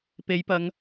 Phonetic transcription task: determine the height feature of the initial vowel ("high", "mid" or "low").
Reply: mid